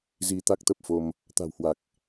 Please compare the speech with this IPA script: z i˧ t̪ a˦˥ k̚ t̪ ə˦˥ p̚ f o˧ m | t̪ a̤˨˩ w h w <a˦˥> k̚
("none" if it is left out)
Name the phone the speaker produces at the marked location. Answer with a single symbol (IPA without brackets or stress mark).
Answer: a˨˩